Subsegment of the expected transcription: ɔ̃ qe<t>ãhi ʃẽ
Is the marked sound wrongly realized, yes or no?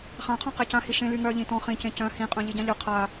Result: yes